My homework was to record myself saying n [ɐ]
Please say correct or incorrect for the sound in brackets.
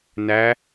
incorrect